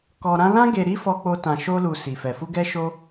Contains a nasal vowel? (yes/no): yes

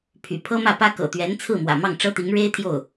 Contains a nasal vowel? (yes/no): no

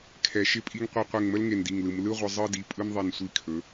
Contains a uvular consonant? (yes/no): yes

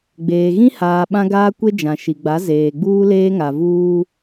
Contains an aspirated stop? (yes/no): no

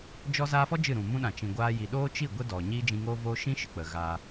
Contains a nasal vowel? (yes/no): yes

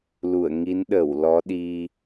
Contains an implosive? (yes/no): yes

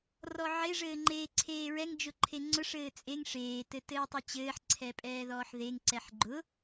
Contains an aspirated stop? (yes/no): yes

